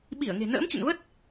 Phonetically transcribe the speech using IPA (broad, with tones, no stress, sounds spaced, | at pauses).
ɓ i˧˩ ə̯ ŋ e̤˨˩ n ə̰ː˧˥ m t͡ɕ ə̰˧˨ n v ə˦˥ t̚